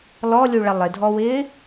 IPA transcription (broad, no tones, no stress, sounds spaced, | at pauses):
l ɔ lʲ u ɭ ɐ lˠ ɪ dʱ ɔ w ɪː